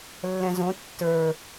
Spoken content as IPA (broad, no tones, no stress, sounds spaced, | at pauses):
lː ɛ̃ z õ tː ə˞